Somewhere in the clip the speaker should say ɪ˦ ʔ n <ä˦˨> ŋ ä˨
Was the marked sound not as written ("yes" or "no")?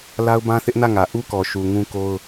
no